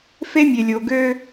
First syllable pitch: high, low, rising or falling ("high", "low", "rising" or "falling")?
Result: high